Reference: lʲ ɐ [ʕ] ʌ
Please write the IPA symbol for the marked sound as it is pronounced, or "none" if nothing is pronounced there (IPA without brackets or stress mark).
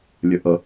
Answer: ʔ